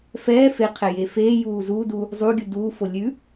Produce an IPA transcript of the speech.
fɛː feqʰɛ jefeː juːzu du | zˤuɡʲu duː folʲʉ

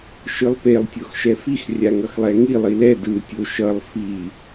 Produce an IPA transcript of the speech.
ʃɯlˠpelˠ tʲoxʃɛfix rʲaŋʌxlˠɛŋi lˠilɛ dɯ tʲoʃʌlˠ fi

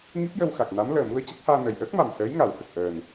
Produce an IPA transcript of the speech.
ŋi˦˥p̚jə˧wxa˨˩k̚na˧˥m ləː˨˩mu˧ə̯ cɨ˦˥k̚haː˧nəː˨˩j ʔəː˦˥k̚ma˨˩m səː˧˥jŋa˨˩˦whə˨˩k̚ ʔəː˨˩n

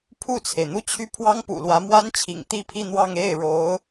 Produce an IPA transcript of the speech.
pʰu˥˩t͡sʰe˩ɪ̯n̪u˥t͡ɕʰy˥˩ pʰwɑ˥ŋpṵ˨˩lwä˧˥ mwa˥nt͡ɕʰḭ˨˩ŋ t̪i˥˧pʰi˥˧n̪wɑ˥˧ŋ e˥˩ɪ̯ɻo˧˥ʊ̯

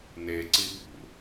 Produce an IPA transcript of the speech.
neǀi ɓṵ

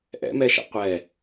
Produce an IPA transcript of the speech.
ʔɛ̰mɛʃa̰ qʷɛ

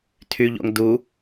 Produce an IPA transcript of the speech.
tʰyʎo̰ŋ du

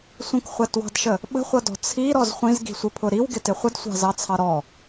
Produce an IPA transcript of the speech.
sʷə̃kχʷætwɑ̤dʃə | ɓə̤χʷʌdɔ̤ t͡sʰiɾɔz χʷĩzɡi̤sʷɪpʰʊ ɾiwɡɪtɪ χʷədsʷɑ̤zɑt͡sʰɑ ɾɔ

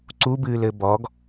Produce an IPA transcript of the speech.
ǀubɨːlɘ bɔɡ

